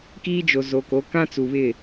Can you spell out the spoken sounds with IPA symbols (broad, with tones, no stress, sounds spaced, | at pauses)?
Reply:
k iː˦ d͡ʒ o˨ z o˨ k o˨˦ k ã˦ t͡s u˨ β ɪ˦˨